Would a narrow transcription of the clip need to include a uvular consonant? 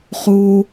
yes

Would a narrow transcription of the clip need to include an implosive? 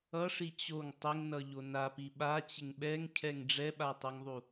yes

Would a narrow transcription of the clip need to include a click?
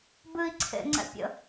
yes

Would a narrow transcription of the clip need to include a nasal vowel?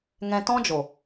yes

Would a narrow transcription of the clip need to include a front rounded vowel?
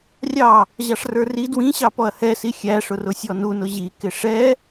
no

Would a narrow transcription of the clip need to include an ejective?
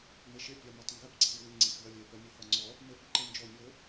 no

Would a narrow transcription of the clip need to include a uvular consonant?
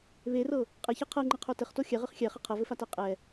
yes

